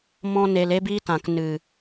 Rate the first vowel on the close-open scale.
mid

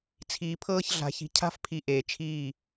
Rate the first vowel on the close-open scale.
close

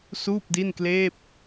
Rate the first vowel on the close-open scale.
close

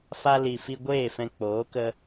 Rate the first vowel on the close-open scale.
open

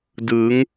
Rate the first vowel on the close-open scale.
close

